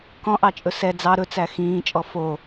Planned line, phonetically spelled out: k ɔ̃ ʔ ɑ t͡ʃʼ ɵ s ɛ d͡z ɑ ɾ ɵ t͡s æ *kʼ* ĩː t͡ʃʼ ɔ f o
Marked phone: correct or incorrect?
incorrect